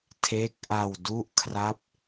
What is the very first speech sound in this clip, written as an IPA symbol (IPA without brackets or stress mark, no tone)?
tʰ